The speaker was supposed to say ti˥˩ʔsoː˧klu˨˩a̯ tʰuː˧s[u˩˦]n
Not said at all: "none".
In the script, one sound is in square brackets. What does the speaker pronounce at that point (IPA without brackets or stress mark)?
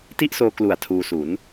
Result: u˩˦